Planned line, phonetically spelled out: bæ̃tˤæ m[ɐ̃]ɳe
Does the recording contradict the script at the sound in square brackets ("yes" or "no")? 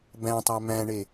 yes